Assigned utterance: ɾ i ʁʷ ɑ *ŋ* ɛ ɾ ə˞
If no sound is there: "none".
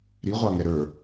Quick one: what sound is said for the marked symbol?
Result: ŋ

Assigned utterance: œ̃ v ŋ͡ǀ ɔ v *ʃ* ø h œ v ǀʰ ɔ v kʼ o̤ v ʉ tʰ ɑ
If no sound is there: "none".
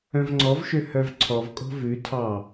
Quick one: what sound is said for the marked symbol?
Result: ʃ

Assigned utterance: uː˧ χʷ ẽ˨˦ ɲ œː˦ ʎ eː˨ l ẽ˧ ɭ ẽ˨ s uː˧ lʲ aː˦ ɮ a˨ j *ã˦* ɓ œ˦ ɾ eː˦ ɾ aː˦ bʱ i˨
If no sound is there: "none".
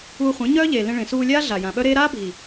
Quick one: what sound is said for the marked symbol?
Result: ã˨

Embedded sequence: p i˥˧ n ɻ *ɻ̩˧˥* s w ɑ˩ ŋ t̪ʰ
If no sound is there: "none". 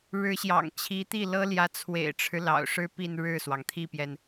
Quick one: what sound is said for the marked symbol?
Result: ɻ̩˥˩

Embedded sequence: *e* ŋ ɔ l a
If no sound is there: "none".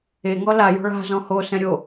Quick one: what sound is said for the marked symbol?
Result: e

